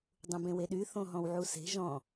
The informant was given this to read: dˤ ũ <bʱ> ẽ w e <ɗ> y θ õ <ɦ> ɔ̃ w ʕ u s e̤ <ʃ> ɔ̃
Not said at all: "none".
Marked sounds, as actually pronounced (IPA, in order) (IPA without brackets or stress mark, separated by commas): b, ɗ, ɦ, ʒ